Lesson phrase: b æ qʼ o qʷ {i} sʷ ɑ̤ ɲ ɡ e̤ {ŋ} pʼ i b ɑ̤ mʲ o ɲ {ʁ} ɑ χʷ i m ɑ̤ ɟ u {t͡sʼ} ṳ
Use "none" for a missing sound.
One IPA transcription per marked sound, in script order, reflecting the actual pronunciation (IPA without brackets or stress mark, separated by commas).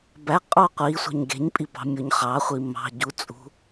i, ɲ, χ, t͡sʼ